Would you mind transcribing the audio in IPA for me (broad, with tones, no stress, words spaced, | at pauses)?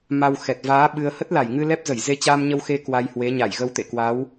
ma˧wxɛ˨˩t̚ vaː˨˦ ɓɨ˧ə̯ hə˦˥t̚la˧˩jŋɨ˧ lɛ˦˥p̚zə˧˩j ze˧t͡ɕaː˧mɲə˧wxe˧ kwa˧jhwe˨˦ ɲa˧˩jɣə˧wt̪ḛ˧˨ kwa˨˦w